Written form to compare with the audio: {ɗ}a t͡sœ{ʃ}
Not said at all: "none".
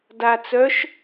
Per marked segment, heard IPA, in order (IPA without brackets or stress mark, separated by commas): d, ʃ